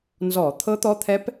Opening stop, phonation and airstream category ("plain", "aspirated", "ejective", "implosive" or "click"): aspirated